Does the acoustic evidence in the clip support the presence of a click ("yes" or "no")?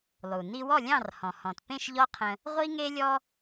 no